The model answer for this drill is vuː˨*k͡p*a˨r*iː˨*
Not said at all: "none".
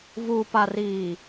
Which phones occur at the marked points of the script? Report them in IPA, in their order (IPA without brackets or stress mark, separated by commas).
p, iː˨